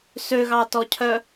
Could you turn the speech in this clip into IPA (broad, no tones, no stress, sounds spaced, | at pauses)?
s ø ɣ ɑ t ɔ cʰ œ